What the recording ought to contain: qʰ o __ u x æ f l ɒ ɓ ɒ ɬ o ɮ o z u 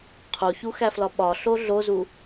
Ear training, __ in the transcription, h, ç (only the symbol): ç